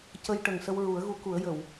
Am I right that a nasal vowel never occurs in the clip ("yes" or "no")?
yes